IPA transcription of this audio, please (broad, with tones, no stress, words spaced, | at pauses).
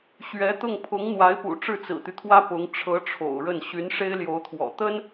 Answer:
ɕɥɛ˧˥t̪ʊ˥˩ŋ pʰʊ˧˥ŋn̪wa˧˥ɪ̯pṵ˨˩ ʈ͡ʂɻ̩˥˩t͡sɹ̩˨˩t̪y˦t̪ʰwä˥ pʊ˧˥ŋ ʈ͡ʂʰɤ˧˥ ʈ͡ʂʰo̰˨˩ʊ̯ɻə˥˩n ɕy˧˥nʂe˥ɪ̯ljo˧˥ʊ̯t̪ʰwɔ̰˨˩ t̪ə˥n